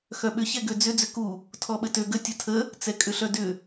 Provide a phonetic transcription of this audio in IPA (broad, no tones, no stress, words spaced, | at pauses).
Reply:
xœɓʏ çɛɡød͡zʏ d͡zʏku | tʰɔɓətø ɡə tʲɐtʰə | t͡sɛkʼʏɬœdʏ